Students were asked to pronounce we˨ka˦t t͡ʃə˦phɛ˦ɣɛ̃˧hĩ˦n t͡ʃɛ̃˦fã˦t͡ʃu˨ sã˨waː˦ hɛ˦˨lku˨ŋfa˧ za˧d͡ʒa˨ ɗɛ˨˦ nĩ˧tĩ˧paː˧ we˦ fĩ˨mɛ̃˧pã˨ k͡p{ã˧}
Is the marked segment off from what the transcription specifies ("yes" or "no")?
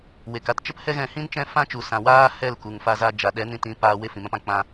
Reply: yes